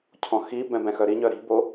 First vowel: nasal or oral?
nasal